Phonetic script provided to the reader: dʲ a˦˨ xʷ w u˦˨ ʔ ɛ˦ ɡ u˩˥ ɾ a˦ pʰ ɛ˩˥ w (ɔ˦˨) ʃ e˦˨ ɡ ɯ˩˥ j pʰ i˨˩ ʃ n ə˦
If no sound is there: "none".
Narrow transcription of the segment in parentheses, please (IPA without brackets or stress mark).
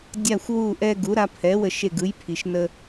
ə˦˨